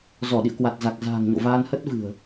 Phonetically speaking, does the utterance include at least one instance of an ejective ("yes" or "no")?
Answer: no